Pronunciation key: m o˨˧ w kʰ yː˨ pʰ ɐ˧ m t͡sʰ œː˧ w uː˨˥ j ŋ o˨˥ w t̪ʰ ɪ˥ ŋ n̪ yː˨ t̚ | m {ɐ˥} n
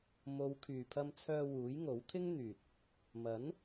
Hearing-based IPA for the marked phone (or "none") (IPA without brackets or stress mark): ɐ˨˥